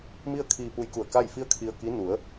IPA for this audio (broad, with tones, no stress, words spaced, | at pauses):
mi˥˨ə̯kʰiː˧pu˧jku˧˩ə̯ ka˥˨jfi˥˨ə̯kʰi˧ə̯ki˧˥ nu˩˧ə̯